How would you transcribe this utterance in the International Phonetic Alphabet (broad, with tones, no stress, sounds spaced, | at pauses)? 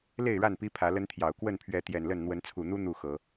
l e˥˨ ɪ̯ ɻ a˥˨ n p i˦ pʰ ä˨˦ l ə˦ n t̪ʰ j ɑ˨˩ ʊ̯ k w ə˥˨ n pʰ ɥ ɛ˨˦ t̪ j ɛ˨˩ n l ə˥˨ n n̪ w ə˨˦ n t͡sʰ u˨˩ n̪ u˦ n̪ u˥˨ x ɤ˨˦